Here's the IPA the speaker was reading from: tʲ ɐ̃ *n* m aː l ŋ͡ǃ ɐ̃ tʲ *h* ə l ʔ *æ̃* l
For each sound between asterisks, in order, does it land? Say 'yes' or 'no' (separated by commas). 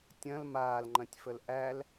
no, no, no